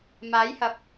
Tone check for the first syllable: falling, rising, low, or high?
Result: rising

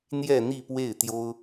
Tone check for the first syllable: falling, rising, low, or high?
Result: falling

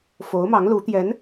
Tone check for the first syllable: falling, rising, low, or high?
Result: rising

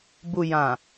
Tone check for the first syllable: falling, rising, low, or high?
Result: low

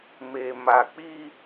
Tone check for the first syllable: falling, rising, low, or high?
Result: low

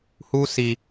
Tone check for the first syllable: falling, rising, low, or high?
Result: high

